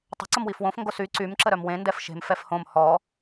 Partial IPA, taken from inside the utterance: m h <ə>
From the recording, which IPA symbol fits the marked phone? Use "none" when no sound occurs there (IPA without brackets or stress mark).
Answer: ɔ